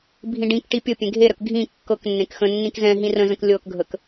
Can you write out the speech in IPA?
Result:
bʱĩɖĩkʈi pʲə pʲẽɡʱeɾək ɡʱĩ kːɤknːẽk xə̃ nːĩkzɛ̃ɦĩ rə̃zə̃k lʲɤkɡʱək

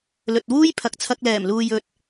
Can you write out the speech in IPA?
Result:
lɵ˨t̚wuː˥j pʰɐ˨k̚t͡sʰɐ˧k̚lɛː˨˩m luː˨jɵ˨t̚

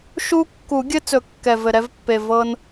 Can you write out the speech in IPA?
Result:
ʃu˦kːu˨˩˦ɡʲɘ˦ t͡sɵ˨˩˦ kːɛ˨˩vɘ˨˩ ɾɛ˦v pːe˨˩vɤ˦n

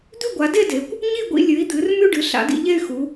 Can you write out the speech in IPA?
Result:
d̪ʉ˥˧ɡʷa˩˧de˥˧de˩˧kʷ | ɲi˥˧ɡʷḭ˧ lʲʉ˩˧i̯d̪ɨ˩˧r mʉ˥˧ɖɨ˩˧ ɬa̰˩˧dḭ˧ʎe˥˧y̯ xu˩˧

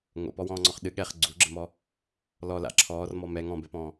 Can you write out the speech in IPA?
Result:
ŋo̰pɔwɔ̃ːŋ͡ǀɔχ ɗɨ ɠɛχ ɡ͡ǀuɡ͡ǁɘmɔ | lɔ la̰ ǁʰɔːrmɔ mɛ ŋɔ̃bɛpɔ̃ː

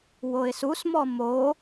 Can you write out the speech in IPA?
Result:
woɪ̯susmɔ mo

